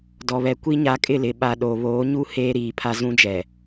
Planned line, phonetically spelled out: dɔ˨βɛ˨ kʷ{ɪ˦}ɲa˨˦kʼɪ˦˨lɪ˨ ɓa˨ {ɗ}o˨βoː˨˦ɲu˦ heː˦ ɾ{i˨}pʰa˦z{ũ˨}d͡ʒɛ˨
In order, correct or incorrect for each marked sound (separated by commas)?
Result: incorrect, correct, incorrect, incorrect